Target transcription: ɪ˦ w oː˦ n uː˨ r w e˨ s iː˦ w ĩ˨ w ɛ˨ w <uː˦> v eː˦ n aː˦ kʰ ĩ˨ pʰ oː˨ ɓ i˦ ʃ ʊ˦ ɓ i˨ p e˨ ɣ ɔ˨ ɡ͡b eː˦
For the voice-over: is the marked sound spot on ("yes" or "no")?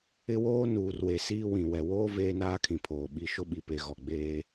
no